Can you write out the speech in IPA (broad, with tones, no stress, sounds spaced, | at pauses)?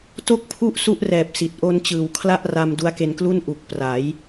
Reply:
t o˥˩ k̚ pʰ u˥˩ ʔ s u˦˥ ʔ r ɛː˨˩ p̚ s i˨˩ t̚ ʔ o˧ n t͡ɕ ɯː˨˩ w kʰ l a˥˩ ʔ r a˧ m d u˦˥ a̯ k e˧ n k l u˥˩ n ʔ u˨˩ k̚ p r a˩˦ j